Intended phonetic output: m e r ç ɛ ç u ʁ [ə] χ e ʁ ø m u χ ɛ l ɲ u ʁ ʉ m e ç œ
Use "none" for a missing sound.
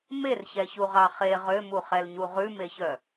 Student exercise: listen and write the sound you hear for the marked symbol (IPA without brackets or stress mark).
ɑ